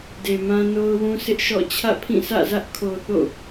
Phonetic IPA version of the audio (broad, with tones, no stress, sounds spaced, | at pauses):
d e˨ m ã˦ n o˦ ʊ̯ w ũ˦ s ɪ˦ ʔ ʃ ɔ̰˦˨ t͡ɕʰ ä̰˦˨ pʰ ĩ˦˨ sʰ ä̰˦˨ z ä˦ ʔ kʰ o˨ θ o̰˦˨